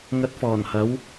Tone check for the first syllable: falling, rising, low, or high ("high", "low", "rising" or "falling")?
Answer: rising